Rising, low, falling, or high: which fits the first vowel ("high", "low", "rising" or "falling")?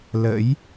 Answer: rising